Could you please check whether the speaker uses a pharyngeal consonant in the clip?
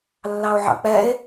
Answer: yes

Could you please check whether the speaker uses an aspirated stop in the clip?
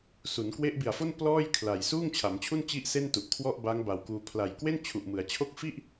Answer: yes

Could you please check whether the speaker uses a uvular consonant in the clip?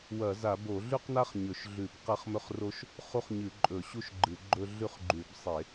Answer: yes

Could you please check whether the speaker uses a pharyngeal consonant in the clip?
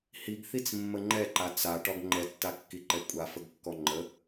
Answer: no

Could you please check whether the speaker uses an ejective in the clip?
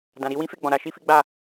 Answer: no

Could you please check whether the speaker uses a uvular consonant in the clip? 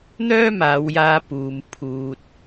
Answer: no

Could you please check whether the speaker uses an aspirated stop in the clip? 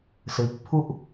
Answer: yes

